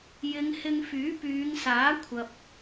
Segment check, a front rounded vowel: present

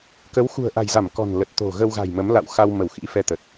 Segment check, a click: absent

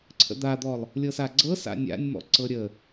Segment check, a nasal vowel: absent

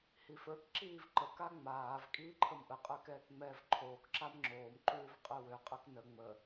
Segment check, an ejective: present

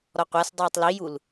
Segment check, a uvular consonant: present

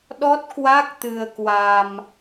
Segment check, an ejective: absent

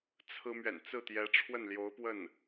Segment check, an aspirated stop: present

